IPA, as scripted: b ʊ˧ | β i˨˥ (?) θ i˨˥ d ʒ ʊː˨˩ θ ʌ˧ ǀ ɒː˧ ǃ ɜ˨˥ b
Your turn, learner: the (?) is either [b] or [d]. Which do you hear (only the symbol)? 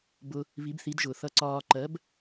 b